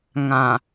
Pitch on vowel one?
low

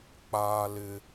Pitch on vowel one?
high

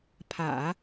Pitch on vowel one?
low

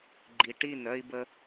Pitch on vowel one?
low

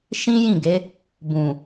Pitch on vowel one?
high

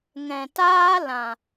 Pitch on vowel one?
low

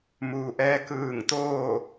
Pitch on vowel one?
low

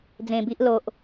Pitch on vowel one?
low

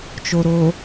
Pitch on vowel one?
low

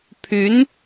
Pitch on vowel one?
rising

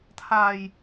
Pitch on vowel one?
low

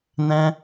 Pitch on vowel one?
high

